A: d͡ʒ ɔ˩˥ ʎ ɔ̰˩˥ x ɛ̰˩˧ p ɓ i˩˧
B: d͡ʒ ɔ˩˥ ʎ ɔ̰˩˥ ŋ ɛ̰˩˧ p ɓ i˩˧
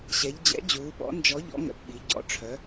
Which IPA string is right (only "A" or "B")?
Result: B